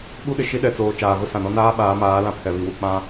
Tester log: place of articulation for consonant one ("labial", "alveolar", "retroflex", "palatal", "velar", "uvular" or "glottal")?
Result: labial